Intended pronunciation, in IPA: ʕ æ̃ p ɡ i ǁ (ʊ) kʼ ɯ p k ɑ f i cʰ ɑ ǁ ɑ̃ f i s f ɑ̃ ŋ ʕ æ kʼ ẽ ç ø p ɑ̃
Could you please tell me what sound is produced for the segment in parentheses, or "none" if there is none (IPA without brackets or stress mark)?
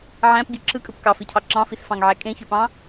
ɯ